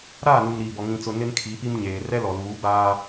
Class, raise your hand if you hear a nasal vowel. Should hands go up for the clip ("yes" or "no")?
yes